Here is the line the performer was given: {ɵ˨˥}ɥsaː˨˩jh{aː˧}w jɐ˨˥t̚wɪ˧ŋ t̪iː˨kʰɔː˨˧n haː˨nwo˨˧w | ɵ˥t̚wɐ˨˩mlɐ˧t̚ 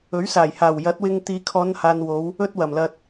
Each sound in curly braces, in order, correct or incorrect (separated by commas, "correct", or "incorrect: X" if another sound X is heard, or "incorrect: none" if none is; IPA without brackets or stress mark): correct, incorrect: aː˨˩